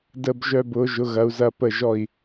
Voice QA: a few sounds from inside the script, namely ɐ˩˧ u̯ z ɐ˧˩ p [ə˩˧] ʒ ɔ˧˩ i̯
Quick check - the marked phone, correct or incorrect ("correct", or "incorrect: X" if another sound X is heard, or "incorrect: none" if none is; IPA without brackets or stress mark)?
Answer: incorrect: ə˧˩